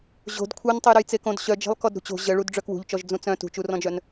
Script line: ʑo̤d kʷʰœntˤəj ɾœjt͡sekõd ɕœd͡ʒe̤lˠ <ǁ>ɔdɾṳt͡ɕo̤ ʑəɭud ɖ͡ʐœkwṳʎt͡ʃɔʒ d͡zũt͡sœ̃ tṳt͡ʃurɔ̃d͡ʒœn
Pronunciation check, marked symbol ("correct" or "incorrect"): incorrect